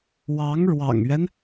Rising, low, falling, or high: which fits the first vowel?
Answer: rising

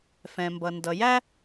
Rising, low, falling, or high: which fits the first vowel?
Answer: low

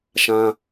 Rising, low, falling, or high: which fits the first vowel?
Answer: high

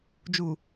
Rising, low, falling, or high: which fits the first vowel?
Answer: low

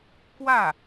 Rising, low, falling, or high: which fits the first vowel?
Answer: falling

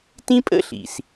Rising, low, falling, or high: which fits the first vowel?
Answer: high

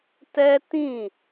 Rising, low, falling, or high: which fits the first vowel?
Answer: high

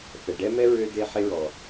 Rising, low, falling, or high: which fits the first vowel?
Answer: low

